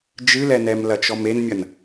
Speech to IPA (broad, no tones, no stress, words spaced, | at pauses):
d͡ʒɨlɛnɛm lɐt͡ʃɔmenmʲɐn